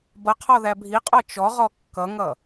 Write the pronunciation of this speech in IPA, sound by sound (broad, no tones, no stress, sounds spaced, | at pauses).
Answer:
b ʌ qʰ ɔ ð æ bʱ i qʼ ɔ t͡ʃ ɔ ʁ ɔ kː ʌ ŋ ʌ